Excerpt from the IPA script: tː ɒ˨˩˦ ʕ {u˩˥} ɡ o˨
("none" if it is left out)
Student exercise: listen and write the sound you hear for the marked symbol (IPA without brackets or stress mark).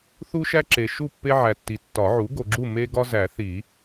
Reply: u˩˥